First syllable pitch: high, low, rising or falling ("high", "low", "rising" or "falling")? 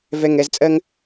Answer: low